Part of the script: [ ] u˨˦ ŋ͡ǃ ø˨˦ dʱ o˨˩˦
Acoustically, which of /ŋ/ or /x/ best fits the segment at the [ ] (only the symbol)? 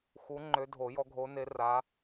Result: x